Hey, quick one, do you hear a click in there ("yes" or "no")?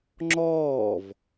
yes